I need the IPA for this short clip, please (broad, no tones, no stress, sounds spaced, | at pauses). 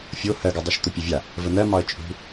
fʲ o h ɜ ɡ u dˤ e ʃ t̪ ʊ pʲ ʊ vʲ a | v ə n̪ ɜ m ɒ ə̯ t͡ʃʼ ṳ